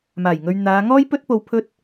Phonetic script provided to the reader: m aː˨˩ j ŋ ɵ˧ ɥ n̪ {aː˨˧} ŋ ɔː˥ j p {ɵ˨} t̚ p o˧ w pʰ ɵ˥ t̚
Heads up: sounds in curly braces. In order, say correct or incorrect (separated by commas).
correct, incorrect